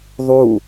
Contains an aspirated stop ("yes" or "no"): no